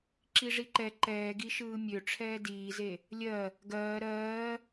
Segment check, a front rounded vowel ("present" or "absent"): present